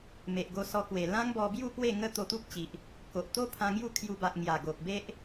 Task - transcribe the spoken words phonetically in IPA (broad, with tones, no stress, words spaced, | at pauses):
me˨ʔɡo˧sɔ˧kwe˨˩ lã˦ŋbɔ˧bju˥˧ pwe˥˧ ŋə˦t̪o˧t̪u˦k̚t͡ɕi˨ʔ | ko˨ʔ t̪o˦ pʰã˧ŋju˥˧kʰju˧ ba˨ʔ ŋja˨˩ɡo˨k̚be˦ʔ